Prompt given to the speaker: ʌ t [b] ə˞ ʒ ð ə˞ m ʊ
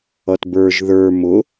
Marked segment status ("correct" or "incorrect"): correct